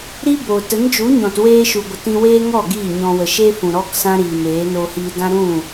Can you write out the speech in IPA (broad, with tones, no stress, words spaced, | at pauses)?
ɾi˦bo˨ tə˨˦nd͡ʒu˨˦ɲɔ̃˨tweː˧ ʃu˨ɡʷə˨ tĩ˧weː˦ŋɔ˦˨ ɡiː˦˨ɲɔ̃˧ wə˨ʃe˦ fũ˨ ɾɔ˦ksã˦ɾiː˨meː˨˦ noː˧hiː˧ dã˦ɾũ˦˨